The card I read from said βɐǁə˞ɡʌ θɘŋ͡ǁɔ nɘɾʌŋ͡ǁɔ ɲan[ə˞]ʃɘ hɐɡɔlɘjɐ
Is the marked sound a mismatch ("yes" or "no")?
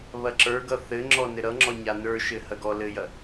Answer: no